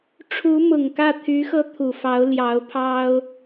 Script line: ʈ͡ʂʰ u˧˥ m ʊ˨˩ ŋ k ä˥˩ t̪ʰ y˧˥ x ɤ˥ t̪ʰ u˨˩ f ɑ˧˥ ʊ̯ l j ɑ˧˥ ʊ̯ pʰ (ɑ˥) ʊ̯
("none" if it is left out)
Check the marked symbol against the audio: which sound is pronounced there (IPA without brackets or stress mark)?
ɑ˥